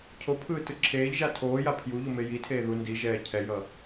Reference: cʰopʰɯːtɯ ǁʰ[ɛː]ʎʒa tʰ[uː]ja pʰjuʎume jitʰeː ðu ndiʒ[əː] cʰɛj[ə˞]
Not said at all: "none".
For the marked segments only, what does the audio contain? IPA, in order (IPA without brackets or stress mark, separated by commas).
eː, oː, ɛː, ʌ